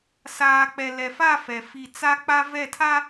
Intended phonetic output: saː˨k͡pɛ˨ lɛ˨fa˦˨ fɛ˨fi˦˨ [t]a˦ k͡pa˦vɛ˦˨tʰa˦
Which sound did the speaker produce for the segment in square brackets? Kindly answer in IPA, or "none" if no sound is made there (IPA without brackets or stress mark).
t͡s